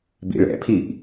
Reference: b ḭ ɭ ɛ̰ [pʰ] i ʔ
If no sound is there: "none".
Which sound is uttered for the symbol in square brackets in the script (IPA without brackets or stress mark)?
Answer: pʰ